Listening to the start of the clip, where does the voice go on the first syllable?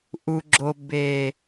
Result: low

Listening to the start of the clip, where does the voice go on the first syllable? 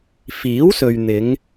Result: rising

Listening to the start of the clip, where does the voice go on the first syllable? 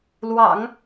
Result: low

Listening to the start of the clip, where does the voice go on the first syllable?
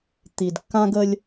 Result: low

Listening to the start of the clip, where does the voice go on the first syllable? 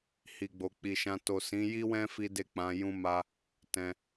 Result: low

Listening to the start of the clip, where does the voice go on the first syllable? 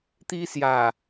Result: high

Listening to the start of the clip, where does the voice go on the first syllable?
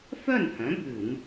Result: falling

